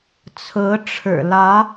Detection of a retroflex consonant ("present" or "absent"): present